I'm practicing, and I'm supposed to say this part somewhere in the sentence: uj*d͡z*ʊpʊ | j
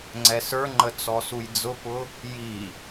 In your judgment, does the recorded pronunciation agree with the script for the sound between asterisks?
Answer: yes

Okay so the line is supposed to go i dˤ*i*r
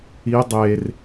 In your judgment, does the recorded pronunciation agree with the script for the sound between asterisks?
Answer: no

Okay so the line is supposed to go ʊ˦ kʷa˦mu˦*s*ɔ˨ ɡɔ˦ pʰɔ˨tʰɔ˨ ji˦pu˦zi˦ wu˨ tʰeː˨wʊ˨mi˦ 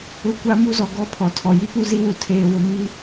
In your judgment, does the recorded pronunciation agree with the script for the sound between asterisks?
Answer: no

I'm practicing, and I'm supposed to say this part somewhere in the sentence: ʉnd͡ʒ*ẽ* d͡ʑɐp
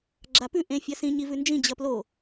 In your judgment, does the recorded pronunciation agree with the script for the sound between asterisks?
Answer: no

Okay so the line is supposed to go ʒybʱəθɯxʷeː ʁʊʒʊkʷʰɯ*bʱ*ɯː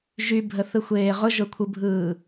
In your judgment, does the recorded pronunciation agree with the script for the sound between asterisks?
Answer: yes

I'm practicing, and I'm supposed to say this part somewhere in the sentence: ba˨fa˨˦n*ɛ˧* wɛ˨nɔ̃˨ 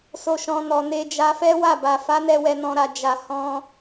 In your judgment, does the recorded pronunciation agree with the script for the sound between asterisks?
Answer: yes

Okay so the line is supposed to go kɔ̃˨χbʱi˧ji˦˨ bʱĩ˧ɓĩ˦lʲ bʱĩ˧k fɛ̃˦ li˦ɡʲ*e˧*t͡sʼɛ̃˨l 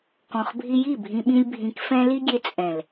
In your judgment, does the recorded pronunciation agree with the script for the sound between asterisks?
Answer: yes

